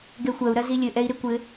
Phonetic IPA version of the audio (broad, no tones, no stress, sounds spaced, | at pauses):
ɡ ɛ xʷ ɐ u̯ ɾ ɐ z i lʲ ɘ ʔ ɛ i̯ ɾ e kʷ ɘ